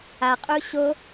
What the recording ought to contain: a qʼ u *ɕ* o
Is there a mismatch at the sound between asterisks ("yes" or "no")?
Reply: no